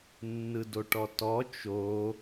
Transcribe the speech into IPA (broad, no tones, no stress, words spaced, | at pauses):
nːɯdoʈɔtɔ t͡ʃo